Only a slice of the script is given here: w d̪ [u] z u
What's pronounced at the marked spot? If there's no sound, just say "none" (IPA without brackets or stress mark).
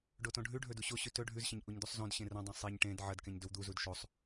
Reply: u